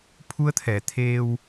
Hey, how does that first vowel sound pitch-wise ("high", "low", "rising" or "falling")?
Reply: rising